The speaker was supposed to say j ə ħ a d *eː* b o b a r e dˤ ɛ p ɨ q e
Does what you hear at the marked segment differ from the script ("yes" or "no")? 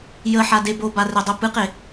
yes